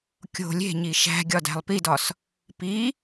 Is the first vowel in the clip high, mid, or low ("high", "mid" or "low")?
mid